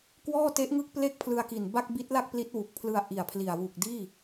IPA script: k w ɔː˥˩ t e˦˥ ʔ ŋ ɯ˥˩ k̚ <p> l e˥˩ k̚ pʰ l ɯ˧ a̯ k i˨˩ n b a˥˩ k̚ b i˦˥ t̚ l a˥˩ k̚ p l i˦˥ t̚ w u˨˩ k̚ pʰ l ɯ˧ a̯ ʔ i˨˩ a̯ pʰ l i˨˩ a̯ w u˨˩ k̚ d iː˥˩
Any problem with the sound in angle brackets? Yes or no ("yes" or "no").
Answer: no